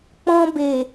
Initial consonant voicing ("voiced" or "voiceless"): voiceless